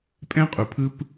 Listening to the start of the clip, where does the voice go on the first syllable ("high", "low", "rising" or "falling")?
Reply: high